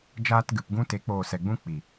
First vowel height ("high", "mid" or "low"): low